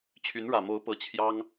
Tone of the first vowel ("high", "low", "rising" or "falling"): rising